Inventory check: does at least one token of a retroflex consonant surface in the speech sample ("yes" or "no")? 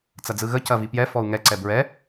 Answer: no